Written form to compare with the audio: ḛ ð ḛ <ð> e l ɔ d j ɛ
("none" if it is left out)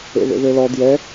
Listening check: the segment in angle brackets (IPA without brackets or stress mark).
ð